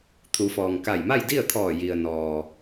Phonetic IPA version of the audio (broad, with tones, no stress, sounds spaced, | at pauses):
t̪ʰ u˩˧ f ɔː˩ ŋ k a˧˩ j m a˥˨ j d i˥˨ ə̯ t̪ʰ ɔː˧˩ j i˩ ə̯ n ɔː˩